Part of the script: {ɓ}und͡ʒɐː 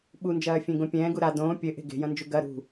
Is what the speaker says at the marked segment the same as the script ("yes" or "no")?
yes